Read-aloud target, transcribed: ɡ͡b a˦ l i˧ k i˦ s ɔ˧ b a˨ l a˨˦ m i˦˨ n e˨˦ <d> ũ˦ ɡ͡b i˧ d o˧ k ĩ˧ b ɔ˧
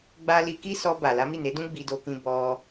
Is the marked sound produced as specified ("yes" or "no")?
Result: yes